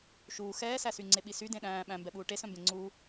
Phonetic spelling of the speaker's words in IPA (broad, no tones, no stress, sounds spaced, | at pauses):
ʃ uː x ɛː s æ s y ŋ͡ǀ e ɓ i s y d ẽ ɗ æ̃ː ɓ æ̃ m b ɛ ɓ uː ʈ e s œ̃ m b ẽ ŋ͡ǀ uː